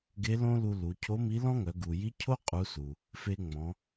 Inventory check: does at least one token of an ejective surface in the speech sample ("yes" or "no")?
yes